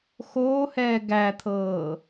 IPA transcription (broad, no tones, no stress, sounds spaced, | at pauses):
x oː h ɛː ɡ æ t̪ʰ ɤː